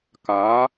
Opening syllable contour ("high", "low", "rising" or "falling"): rising